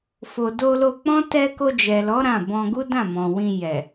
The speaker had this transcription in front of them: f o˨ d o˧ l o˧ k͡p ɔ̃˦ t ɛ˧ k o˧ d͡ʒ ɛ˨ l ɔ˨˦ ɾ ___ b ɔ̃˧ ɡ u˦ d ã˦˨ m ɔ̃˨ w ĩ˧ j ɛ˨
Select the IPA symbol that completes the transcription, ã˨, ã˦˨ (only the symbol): ã˦˨